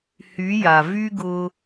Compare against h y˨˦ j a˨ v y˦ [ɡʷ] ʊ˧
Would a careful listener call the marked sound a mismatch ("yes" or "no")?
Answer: yes